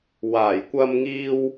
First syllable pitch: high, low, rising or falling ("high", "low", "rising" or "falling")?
low